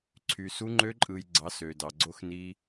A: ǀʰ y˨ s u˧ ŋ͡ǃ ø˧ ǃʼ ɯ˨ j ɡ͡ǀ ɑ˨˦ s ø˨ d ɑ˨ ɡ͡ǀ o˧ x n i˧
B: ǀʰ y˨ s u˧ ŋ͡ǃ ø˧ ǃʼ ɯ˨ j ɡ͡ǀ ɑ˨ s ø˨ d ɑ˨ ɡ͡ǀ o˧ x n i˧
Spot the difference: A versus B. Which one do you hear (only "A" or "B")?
A